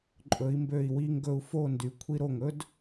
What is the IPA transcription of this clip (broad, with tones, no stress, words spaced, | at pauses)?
ǃʼɵ˩˧i̯mbø˧˩i̯ wi˧ŋɡɵ˧u̯ fo˥˧ndy˩˧ kʷʰi˧ɾo˧˩ŋɵ˥d